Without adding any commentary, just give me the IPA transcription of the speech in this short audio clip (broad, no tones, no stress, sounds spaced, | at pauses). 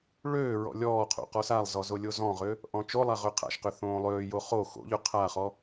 ɭ øː ɹ ɔ̰ lʲ ɔː qʰ o̰ q ɔ s a lˠ z ɔ z o lʲ o z ɔ̃ ʁ ø | ʔ ɔ̃ t͡ʃ o lˠ a ʁ ø qʰ a̰ ʃ q ø θ õː lˠ øː j o χ o x o̰ ʎ ɵ qʰ a χ ɔ